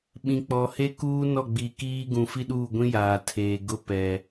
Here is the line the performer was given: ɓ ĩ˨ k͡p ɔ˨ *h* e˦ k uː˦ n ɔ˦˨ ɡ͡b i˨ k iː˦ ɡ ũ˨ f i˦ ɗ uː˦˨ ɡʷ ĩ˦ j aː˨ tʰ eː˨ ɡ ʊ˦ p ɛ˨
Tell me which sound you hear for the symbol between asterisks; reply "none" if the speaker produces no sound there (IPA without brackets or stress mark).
h